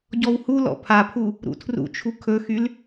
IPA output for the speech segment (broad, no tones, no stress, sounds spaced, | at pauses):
ɟ ɔ w h u l ɔ̰ pʰ a pʰ u | ɾ ṵ tʰ r ṵ t͡ʃʰ u kʰ ɵ x y l